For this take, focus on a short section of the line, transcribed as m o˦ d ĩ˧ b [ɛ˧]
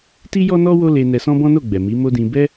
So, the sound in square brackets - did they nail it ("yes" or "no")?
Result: no